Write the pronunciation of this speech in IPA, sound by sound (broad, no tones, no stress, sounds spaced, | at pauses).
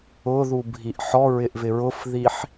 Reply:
ʊ ð u bʱ i ʔ ħ ɔ ɹ ɪ ʔ v ɪ ɹ ʊ f ð i ħ